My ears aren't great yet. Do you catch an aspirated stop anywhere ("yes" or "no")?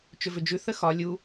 no